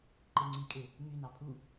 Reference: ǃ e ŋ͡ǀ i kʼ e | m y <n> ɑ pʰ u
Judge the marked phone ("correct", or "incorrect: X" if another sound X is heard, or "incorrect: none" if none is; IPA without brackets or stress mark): correct